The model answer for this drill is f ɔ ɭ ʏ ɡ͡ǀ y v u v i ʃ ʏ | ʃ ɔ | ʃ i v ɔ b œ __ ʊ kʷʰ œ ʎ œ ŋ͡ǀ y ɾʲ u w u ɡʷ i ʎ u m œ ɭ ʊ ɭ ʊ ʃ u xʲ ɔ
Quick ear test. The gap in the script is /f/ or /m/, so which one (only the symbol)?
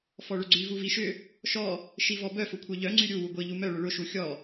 f